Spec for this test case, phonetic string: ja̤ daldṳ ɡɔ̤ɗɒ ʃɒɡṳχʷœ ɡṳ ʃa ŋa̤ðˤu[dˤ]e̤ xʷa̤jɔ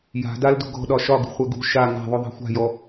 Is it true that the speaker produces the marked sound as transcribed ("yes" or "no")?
no